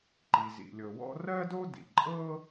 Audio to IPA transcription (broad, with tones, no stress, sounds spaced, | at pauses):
ǃ i˩ z ḭ˩ lʲ ɤ˩ w ɔ̰˥ r ɜ˥ d o˥ d ḭ˩ ǃʼ ɤ˥